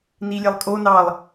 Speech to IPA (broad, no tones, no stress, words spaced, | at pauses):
nilʲelˠkʼo nɑlˠ